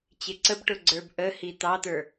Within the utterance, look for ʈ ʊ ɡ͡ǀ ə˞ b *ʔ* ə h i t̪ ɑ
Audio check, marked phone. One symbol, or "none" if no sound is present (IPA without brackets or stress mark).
ʔ